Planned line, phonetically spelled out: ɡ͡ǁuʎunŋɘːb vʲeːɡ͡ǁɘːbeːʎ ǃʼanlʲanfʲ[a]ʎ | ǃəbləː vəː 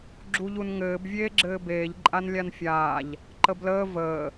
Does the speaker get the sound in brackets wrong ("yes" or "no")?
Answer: yes